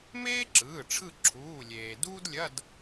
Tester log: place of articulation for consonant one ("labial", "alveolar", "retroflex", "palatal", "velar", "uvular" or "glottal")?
labial